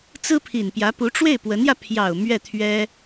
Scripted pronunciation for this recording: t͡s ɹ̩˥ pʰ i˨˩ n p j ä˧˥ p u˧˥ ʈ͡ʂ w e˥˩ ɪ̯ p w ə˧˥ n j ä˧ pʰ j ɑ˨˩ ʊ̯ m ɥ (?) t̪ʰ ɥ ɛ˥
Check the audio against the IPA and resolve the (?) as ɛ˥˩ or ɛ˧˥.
ɛ˥˩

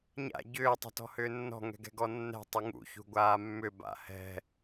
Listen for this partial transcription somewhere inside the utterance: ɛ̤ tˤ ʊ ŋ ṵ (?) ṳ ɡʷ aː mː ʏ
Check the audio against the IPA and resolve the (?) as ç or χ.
ç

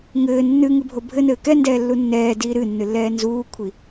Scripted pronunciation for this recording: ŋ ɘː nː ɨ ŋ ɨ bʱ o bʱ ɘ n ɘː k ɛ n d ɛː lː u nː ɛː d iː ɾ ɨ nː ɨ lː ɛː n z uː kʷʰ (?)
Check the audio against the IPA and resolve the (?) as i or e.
i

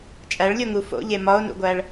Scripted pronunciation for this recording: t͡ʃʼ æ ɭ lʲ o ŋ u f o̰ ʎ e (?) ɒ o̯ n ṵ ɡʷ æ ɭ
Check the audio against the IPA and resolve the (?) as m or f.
m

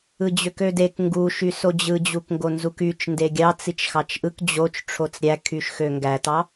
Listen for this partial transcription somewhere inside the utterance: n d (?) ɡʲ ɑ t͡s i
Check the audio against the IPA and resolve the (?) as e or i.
e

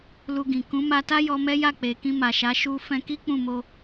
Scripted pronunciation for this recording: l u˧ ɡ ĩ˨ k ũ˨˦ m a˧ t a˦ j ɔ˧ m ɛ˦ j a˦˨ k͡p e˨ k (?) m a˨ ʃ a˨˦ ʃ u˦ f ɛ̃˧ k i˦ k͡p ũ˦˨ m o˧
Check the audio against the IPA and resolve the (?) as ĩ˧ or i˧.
ĩ˧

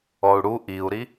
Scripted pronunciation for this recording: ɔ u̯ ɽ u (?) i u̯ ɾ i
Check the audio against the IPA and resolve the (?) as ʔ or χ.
ʔ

